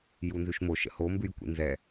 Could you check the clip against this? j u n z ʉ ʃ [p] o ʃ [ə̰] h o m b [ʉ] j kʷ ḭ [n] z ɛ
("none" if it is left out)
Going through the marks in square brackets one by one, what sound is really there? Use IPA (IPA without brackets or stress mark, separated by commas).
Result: m, ə̰, ʉ, n